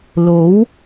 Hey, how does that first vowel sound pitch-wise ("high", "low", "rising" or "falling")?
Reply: rising